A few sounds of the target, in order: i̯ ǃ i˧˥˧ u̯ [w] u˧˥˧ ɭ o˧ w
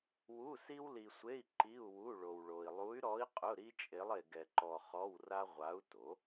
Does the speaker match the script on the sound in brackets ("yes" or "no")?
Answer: yes